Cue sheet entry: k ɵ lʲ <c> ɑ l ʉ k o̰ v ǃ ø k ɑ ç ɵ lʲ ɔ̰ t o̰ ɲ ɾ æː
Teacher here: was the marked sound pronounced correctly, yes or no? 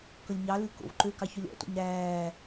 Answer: no